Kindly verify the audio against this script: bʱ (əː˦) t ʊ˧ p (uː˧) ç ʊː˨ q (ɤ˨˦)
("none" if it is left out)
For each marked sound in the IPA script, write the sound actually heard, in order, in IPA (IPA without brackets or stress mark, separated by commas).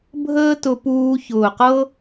əː˦, uː˧, ɤ˦